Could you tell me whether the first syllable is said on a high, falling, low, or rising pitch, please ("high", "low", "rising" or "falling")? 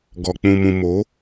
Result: low